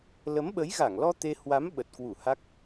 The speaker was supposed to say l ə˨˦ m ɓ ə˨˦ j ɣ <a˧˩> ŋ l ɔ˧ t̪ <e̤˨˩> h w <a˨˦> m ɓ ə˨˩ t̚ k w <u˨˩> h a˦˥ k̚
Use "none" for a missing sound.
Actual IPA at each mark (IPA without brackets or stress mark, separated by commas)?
a˧˩, e˧, a˨˦, u˧˩